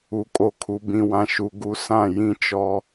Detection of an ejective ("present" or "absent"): present